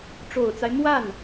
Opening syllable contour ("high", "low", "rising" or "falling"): low